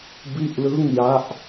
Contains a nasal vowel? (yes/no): no